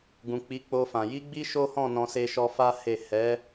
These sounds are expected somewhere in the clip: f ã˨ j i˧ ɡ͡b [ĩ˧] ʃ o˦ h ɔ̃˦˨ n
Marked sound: incorrect: i˧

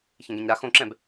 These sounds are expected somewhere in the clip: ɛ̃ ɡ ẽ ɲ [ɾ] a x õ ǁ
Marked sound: correct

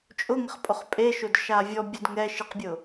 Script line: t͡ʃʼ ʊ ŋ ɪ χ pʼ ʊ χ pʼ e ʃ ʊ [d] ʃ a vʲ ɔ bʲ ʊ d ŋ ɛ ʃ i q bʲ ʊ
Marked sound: correct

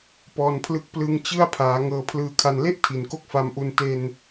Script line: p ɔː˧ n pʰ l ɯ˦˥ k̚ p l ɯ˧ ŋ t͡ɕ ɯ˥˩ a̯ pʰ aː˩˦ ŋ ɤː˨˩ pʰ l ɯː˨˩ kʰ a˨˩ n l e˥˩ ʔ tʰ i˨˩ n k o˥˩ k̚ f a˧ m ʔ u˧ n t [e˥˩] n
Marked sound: incorrect: e˧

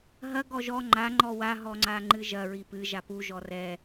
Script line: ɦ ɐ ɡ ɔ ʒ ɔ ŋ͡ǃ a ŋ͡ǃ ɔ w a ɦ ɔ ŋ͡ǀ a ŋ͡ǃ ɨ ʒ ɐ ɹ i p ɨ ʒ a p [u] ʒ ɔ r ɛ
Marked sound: correct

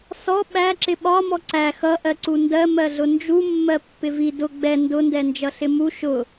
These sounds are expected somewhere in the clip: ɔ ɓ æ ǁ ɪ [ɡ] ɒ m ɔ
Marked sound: incorrect: ɓ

